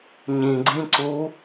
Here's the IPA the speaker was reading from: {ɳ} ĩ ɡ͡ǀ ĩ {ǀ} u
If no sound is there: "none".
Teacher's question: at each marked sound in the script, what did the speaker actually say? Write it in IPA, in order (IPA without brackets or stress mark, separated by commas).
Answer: ɲ, ǀ